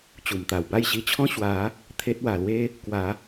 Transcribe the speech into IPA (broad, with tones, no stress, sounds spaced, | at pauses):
t͡ɕ u˨˩ m t̪ a˨˩ w b a˥˧ j ɕ i˧ t͡ɕʰ ɔ̃˦ ɕ w a˨˦ | t̪ʰ e˦ t̚ w a˨˩ l w e˦ | k w a˨˦